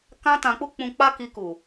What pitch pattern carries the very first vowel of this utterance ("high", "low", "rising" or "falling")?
high